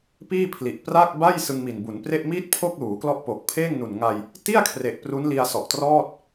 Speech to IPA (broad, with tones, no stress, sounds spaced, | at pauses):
p iː˥˩ pʰ l i˨˩ ʔ p r aː˥˩ k̚ b a˥˩ j s ɯ˧ ŋ m i˨˩ n b u˩˦ n p r e˥˩ ʔ m iː˥˩ t̚ pʰ o˥˩ k̚ l uː˩˦ k l ɔ˦˥ ʔ p o˨˩ k̚ pʰ eː˥˩ ŋ n u˨˩ n ŋ a˧ j | t i˥˩ a̯ kʰ r e˨˩ ʔ p r u˦˥ n l i˧ a̯ s ɔ˨˩ ʔ t r ɔː˥˩ t̚